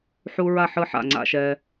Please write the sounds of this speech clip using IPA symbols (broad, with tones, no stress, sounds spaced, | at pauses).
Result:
ħ u˦ ɹ a˥˨ ħ ɯ˦ ħ a̰˥˨ ŋ͡ǀ a̰˦ ʃ ɛ˦